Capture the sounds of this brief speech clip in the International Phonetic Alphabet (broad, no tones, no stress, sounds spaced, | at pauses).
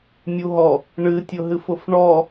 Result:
mʲ u ɦ ɔ | ɳ ɨ tʲ ʊ ɦ ɨ f ʊ f ɳ ɔ